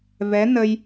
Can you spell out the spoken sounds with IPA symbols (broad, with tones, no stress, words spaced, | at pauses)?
vɛ˧˥nə˧j